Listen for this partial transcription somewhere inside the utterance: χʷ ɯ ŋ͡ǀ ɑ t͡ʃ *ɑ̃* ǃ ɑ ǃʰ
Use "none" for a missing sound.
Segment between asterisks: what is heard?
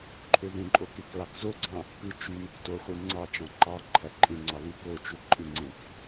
ɑ̃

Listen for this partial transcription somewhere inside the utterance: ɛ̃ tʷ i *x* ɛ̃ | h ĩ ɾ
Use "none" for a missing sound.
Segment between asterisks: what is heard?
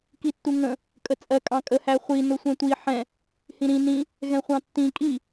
ħ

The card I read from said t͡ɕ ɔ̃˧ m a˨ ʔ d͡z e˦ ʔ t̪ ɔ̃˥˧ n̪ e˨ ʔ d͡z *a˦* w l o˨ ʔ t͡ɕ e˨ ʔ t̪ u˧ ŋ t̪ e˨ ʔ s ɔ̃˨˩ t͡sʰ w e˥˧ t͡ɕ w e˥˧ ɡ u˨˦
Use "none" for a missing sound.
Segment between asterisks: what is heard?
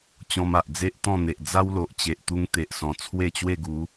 a˦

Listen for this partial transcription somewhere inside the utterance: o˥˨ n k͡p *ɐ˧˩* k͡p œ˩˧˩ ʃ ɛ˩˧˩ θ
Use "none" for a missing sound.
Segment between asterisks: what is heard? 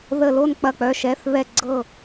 ɐ˧˩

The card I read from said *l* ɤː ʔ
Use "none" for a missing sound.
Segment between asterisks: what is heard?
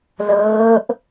l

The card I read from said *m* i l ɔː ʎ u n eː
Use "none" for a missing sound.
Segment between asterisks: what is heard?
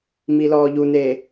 m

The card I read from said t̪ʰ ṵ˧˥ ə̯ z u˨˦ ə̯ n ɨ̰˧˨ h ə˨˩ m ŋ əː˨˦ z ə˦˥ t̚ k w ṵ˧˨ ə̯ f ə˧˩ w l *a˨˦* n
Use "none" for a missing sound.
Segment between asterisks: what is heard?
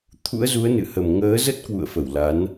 a˨˦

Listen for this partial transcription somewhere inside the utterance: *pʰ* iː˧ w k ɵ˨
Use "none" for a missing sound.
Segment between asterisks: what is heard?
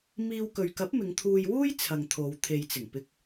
m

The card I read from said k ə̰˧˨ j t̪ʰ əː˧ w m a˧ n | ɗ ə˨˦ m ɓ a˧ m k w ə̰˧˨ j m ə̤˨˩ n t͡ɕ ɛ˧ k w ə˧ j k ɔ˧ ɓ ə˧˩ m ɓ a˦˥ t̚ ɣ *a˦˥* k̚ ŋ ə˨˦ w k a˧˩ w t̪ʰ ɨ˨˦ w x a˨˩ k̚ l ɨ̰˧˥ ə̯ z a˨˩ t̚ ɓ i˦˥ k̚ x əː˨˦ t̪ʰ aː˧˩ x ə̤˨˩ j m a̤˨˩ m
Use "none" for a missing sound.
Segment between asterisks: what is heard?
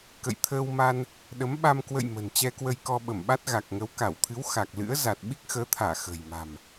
a˨˩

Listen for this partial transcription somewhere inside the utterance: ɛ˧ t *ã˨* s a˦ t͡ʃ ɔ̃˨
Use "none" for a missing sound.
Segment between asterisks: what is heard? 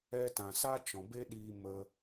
ã˨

